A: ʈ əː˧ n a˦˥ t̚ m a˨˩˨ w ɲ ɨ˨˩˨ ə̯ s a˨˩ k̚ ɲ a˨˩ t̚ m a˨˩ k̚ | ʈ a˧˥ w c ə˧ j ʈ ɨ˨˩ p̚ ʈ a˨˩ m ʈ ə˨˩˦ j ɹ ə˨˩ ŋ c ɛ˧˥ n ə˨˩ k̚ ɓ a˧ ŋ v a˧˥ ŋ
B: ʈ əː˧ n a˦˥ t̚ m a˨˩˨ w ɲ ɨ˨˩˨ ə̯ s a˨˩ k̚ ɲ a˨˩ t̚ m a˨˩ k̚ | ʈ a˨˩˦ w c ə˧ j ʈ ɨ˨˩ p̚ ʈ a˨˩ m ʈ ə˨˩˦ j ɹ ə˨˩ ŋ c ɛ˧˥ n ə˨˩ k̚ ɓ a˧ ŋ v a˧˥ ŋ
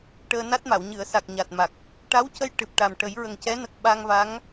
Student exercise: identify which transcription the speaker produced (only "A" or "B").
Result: A